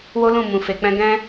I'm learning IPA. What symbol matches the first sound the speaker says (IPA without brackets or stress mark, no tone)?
w